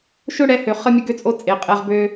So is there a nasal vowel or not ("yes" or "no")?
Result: no